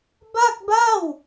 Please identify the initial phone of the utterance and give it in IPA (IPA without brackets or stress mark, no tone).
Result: b